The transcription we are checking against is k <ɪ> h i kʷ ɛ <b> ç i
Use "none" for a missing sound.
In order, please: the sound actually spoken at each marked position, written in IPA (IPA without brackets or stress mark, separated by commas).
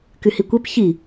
y, p